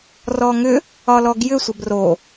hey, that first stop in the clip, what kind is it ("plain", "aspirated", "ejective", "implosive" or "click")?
plain